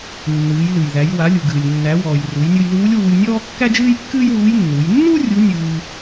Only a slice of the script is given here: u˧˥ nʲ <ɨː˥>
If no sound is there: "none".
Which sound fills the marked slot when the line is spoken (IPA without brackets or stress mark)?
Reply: ɨː˧